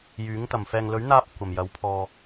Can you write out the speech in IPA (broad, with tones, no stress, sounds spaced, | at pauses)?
j yː˨˥ ŋ t̪ ɐ˨˩ m f ɛː˨ ŋ l ɵ˨˥ ɥ n̪ aː˧ p̚ kʷ ɐ˨˩ m j ɐ˨˥ w pʰ ɔː˧